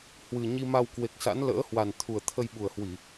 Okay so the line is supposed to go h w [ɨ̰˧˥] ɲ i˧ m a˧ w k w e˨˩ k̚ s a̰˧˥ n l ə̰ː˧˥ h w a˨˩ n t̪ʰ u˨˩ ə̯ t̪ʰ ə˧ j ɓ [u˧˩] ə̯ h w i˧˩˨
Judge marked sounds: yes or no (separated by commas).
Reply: no, no